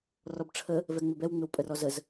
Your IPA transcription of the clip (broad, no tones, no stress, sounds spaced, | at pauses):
r ɔ b ʈ͡ʂʰ ə | v ɛ ŋ͡m ɪ b ɛ w ŋ͡m ɪ w pʼ ə r ɔ z ə z